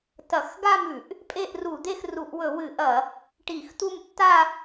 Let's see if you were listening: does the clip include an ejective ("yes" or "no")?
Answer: yes